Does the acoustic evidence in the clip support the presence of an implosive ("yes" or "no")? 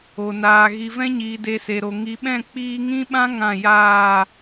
yes